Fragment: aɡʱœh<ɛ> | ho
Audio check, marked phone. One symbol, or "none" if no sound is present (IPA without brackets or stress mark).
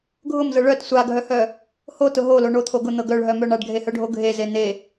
œ